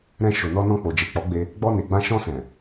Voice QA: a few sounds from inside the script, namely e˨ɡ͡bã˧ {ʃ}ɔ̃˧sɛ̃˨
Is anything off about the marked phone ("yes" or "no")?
no